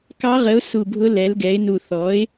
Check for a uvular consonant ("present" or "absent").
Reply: present